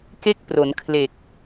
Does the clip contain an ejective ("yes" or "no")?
no